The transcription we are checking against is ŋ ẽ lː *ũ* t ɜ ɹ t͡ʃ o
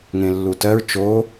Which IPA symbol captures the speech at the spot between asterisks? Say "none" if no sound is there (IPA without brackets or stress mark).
u